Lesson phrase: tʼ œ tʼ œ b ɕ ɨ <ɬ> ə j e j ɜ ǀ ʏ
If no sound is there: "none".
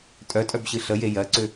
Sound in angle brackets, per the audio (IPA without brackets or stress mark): ɬ